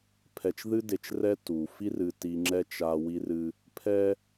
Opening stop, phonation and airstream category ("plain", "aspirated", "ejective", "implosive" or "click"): aspirated